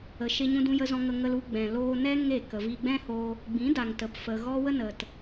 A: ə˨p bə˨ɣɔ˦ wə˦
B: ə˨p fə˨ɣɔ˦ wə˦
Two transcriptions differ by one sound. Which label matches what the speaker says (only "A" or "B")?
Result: B